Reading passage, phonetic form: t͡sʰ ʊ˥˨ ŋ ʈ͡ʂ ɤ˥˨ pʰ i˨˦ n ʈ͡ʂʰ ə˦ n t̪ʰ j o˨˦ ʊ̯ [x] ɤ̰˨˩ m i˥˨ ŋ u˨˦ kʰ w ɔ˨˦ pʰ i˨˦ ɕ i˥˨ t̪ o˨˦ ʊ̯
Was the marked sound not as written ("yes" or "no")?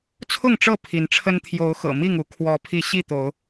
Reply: no